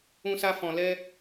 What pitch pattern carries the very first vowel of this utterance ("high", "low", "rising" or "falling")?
high